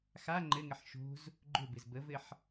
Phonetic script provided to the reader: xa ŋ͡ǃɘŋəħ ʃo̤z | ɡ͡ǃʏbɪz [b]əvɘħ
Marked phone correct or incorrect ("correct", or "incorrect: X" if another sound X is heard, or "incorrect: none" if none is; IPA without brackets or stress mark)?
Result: correct